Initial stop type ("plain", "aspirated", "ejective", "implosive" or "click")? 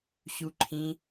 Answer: click